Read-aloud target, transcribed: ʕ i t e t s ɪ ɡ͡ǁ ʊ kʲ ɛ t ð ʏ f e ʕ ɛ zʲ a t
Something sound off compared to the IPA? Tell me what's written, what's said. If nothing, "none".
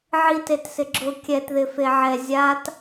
ʏ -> ɪ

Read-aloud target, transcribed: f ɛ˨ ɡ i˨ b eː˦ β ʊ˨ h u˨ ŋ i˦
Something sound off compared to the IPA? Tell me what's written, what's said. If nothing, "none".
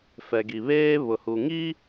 b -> β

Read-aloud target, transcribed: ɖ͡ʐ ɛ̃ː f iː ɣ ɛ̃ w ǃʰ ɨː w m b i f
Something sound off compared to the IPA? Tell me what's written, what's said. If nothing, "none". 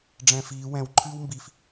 ɣ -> w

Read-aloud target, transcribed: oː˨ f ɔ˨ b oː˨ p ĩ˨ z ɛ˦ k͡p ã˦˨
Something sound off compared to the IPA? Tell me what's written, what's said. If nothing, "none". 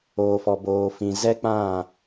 p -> f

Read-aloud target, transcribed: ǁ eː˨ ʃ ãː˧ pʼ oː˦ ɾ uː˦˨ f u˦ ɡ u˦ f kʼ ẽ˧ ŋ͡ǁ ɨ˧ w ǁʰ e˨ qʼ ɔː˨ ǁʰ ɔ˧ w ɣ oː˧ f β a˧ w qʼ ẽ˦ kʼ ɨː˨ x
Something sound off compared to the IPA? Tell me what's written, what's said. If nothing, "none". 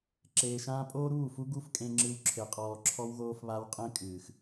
none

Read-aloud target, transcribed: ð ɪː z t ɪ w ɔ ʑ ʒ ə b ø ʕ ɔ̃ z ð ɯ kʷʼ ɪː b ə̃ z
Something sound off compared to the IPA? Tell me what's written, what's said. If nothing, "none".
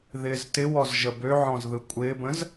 ʑ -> z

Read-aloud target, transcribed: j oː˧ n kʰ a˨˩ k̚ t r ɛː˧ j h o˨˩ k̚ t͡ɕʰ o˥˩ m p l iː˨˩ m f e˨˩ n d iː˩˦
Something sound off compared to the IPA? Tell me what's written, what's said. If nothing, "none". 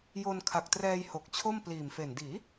oː˧ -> o˧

